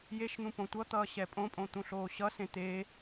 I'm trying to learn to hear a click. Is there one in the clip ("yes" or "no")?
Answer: no